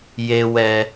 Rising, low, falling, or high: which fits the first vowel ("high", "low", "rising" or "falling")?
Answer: low